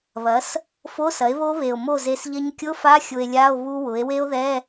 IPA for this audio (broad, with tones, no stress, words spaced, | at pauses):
βɐ˩˥s | fo˧˥˧sɐ˩˥e̯βo˦˥βe˨˩o̯ mo˥˩ze˧sʎɐ˦˥ɲ kʲʊ˧˥˧fa˧˥˧ xʲʊ˧e̯lʲa˧˥˧o̯ βu˦˥wʊ˩˥e̯ we˦˥o̯ðɛ˧˥˧